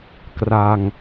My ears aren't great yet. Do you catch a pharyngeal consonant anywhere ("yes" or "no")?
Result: no